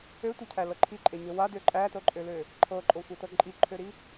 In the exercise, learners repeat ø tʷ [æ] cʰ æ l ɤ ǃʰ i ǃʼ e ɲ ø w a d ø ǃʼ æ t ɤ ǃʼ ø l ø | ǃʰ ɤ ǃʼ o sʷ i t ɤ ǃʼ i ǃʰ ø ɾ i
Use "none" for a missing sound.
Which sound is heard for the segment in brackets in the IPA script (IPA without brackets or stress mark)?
ɛ